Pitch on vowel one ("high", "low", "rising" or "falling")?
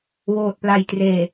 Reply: low